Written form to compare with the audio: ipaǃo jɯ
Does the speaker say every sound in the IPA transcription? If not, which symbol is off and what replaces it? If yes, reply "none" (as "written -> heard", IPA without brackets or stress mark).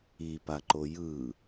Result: none